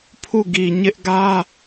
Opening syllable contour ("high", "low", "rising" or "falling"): falling